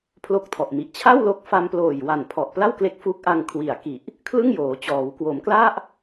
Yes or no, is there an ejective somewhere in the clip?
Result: no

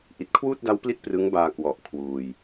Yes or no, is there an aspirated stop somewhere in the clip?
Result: yes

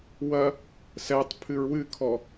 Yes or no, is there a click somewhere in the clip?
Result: no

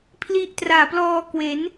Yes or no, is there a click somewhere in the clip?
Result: no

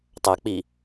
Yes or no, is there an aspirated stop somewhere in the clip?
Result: no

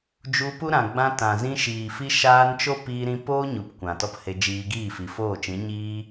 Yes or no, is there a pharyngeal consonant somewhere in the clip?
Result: no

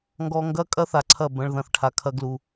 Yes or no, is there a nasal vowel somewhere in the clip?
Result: yes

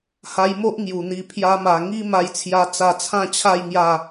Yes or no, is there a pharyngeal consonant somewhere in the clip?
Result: no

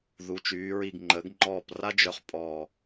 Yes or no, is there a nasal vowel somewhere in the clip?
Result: no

